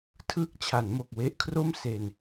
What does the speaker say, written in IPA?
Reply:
tʰ ɯː˦˥ k̚ t͡ɕʰ a˩˦ n m o˨˩ k̚ w e˦˥ ʔ kʰ r o˥˩ m s e˧ n

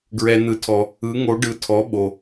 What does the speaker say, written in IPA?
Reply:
ɡ ɹ ɛ˩ n̪ ɯ˩˧ tʰ ɔ˩ | ɯ˩˧ ŋ o˩˧ ɖ ɯ˩˧ tʰ ɔ˩˧ ɓ o˩

